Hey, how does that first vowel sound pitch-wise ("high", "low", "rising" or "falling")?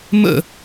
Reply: falling